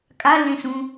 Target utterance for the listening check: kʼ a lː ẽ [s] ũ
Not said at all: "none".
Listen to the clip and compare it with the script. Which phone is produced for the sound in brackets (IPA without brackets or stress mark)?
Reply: s